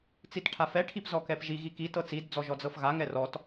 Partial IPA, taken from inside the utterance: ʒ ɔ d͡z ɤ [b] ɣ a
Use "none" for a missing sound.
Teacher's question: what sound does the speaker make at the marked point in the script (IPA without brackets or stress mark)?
f